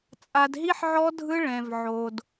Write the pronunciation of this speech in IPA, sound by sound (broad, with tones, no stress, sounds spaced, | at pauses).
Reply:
t͡sʼ a˧ d ɦ i˦ ħ ʕ ɔ˦ dʱ ɯ˦ ɭ ɛ̃˧ v ʕ o˧ d